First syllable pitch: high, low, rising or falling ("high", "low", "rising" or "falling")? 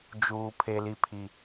high